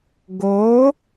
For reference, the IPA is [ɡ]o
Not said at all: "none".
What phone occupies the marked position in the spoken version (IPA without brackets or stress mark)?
ɡ